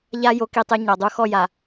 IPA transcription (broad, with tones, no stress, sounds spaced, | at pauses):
ʎ a˦ j o˦ k i˦ tˤ e˦ ɲ ɔ˨ dˤ u˦˨ x ɔ˦˨ j a˨